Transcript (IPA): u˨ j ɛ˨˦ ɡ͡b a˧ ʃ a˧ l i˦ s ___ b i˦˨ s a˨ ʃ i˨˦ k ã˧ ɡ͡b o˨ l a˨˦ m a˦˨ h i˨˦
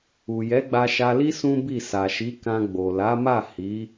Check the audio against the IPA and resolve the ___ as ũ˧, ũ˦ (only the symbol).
ũ˦